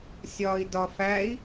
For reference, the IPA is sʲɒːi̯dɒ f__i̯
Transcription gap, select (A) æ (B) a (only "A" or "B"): A